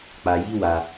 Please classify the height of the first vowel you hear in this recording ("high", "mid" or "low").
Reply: low